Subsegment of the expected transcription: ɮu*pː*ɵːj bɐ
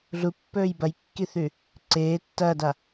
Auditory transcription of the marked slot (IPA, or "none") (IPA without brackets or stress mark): pː